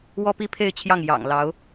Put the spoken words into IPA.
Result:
w ɔ˥ p i˥ pʰ e˥˧ ɪ̯ t͡ɕʰ j ɑ˥˩ ŋ j ɑ̰˨˩ ŋ l ɑ˧˥ ʊ̯

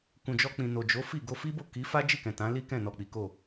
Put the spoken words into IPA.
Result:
k ũ˨ d͡ʒ ɔ˧ k͡p ĩ˨ n o˨ d͡ʒ o˨˦ f i˦˨ ɡ o˧ f i˦ b o˦˨ k i˨˦ f a˦ d͡ʒ i˦˨ k ɛ̃˨ t ã˨˦ l i˦ k ɛ̃˦˨ n ɔ˨ k͡p i˨˦ k o˦˨

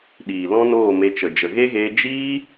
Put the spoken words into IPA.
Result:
ɗ iː˨ l ɔ̃˦ n oː˦˨ m e˧ t͡ʃ ə˨ d͡ʒ ə˨ ɣ e˦ ɣ eː˧ d͡ʒ iː˦

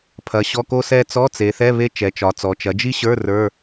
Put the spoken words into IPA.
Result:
pʰ ɐ˩˧ ɕ ɔ˧˥˧ k o˥ s ɛ˥ t͡s ɔ˧˥˧ t͡s e˩˧ θ ɛ˧˥˧ β e˥ t͡ʃ ɛ˩˧ t͡ʃ ɒ˩˧ t͡s ɔ˩˧ t͡ʃ ɐ˩˧ d͡ʒ i˥ ɕ ə˞˧˥˧ r ə˞˧˥˧

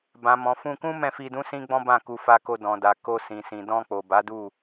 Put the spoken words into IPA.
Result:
b ã˨ m ɔ̃˨ f ũ˧ k ũ˦ m ɛ̃˦˨ f i˧ d ũ˦ s ĩ˦ ɡ͡b ɔ̃˦ b ã˦˨ k u˧ f a˧ k o˧ d ɔ̃˨ d a˨ k o˧ s ĩ˨ s ĩ˨ d ɔ̃˧ k͡p o˨ b a˨˦ d u˦˨

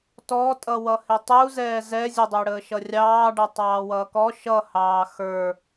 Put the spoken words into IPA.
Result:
t ɔ tʼ ʌ w ʌ h ɪ tˤ u z ɛː z ɛ zʲ ʊ dˤ əː ɽ əː ʃ ʌ rʲ ɑː ɖ ʌ tˤ ɑː w ʌː k ɔ ʃ ʌ h ɑː x ə˞

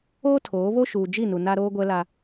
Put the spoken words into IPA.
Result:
oː˦ tʰ oː˨˦ β o˦ ʃ uː˨ d͡ʒ i˦˨ n u˨ n a˦ ɾ oː˦ ɡʷ ɛ˦ l a˦

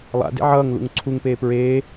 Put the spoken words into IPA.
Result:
lˠ a̰ d ḛ ʕ ʌː ŋ l ṵ ŋ ǀʰ u ŋ p eː p ɹ eː

